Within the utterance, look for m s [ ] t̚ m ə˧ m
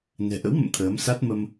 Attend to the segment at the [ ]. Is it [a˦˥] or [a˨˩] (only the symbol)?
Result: a˦˥